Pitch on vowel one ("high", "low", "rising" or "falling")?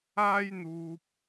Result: high